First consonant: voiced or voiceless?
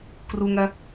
voiceless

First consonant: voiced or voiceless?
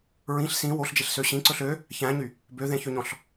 voiced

